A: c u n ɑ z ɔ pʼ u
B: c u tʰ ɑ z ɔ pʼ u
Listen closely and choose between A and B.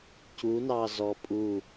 A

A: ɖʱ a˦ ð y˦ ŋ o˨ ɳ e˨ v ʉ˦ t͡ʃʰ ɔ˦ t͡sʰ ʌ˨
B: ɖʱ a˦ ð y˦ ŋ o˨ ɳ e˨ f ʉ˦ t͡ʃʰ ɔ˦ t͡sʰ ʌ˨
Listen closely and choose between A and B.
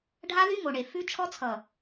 B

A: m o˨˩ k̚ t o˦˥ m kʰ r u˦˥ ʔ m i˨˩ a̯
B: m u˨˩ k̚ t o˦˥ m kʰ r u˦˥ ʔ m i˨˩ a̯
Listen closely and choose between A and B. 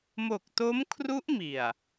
A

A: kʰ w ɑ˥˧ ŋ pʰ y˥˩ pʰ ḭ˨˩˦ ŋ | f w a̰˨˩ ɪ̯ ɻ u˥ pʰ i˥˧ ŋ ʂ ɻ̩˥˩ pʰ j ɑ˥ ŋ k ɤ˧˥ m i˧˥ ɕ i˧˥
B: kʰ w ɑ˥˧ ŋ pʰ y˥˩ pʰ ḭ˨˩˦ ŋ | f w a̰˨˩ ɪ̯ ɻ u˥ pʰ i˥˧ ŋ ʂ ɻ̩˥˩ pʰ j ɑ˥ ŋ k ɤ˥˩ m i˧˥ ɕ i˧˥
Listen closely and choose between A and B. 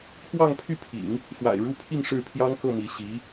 B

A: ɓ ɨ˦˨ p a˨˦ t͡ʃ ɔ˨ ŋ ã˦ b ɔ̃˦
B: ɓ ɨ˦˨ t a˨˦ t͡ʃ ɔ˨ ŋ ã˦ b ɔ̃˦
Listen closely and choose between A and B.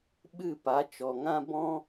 A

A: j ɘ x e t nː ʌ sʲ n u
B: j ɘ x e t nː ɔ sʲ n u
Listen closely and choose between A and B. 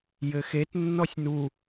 B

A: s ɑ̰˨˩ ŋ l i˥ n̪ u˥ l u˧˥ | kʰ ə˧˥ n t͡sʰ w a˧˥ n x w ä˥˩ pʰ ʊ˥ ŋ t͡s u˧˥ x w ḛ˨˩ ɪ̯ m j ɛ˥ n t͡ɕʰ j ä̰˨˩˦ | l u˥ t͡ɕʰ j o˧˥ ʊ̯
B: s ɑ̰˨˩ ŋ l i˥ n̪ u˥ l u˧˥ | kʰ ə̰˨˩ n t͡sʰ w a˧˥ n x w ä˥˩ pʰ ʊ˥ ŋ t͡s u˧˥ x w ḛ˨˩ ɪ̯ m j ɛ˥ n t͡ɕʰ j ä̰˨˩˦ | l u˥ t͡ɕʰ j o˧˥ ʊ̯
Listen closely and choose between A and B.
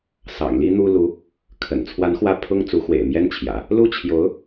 B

